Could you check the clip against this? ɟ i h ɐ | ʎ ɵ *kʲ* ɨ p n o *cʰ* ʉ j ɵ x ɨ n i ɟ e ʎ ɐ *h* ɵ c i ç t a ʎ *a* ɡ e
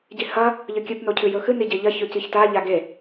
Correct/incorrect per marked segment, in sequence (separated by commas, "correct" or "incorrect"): correct, correct, incorrect, correct